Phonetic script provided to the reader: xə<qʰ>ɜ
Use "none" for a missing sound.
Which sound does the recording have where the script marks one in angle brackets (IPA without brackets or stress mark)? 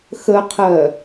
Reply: qʰ